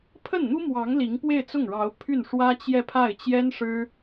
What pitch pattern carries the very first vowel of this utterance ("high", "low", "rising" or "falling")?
falling